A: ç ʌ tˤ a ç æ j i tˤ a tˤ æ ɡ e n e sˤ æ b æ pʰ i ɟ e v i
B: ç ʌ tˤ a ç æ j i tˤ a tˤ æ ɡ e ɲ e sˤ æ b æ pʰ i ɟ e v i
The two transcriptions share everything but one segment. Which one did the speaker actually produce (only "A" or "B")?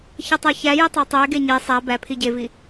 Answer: B